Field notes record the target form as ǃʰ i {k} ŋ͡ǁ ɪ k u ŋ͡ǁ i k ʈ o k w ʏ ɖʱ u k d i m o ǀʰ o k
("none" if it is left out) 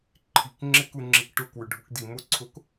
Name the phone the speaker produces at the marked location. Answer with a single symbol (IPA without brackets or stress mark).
k